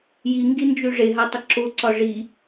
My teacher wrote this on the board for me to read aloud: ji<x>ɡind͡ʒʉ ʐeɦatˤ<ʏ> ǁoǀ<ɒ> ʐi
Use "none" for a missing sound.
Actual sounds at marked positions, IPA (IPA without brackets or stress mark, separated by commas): ŋ, ə, ɒ